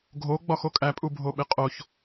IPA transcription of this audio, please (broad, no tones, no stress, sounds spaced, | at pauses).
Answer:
ɡʱ o ɡ͡b ɒ x o kʼ æ pʼ u bʱ o ɓ e qʼ o ç